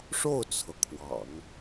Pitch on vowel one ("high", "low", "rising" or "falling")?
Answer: falling